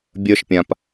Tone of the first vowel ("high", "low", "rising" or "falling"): high